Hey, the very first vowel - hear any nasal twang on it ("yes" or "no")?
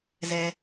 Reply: no